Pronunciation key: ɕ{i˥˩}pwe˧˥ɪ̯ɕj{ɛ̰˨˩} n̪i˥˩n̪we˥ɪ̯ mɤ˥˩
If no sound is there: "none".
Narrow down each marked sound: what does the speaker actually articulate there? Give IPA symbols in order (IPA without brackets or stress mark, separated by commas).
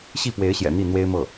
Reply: i˥˩, ɛ̰˨˩